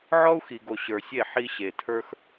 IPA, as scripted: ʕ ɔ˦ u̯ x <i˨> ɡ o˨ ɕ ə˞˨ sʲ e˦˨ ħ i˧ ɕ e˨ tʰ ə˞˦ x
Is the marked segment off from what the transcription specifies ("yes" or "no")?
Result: no